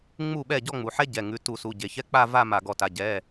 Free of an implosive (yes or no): no